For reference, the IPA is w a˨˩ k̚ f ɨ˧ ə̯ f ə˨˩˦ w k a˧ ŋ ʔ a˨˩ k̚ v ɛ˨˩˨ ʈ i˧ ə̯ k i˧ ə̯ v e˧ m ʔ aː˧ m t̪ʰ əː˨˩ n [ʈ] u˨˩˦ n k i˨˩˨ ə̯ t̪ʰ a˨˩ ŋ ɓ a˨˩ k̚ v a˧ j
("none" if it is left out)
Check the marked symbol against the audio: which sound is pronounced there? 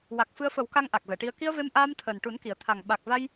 ʈ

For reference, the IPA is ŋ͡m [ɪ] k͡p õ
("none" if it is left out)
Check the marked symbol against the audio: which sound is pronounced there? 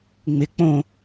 ɪ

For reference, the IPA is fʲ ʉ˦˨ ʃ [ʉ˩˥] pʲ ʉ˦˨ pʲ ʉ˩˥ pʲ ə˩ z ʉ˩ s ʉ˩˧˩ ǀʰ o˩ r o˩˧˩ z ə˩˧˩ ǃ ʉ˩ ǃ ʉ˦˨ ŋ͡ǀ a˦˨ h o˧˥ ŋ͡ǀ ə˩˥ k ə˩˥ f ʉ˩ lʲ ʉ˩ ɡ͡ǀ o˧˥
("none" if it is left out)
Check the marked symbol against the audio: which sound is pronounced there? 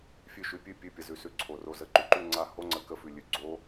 ʉ˩˥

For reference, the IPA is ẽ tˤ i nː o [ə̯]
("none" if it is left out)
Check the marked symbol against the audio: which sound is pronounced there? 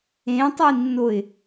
ɪ̯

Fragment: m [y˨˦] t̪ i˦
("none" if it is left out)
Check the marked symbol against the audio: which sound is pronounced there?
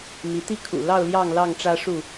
i˨˦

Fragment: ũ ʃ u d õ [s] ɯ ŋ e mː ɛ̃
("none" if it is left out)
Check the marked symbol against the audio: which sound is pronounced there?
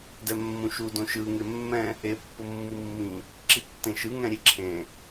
ʃ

